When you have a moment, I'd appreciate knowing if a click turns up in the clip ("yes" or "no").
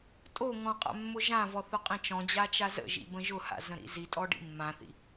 no